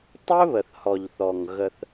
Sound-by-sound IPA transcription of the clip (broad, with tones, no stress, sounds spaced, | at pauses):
tˤ ɵ˦ β ə˨ θ h ɔ˨ ʎ θ ɔ˨ ŋ ɣ ə˦ θ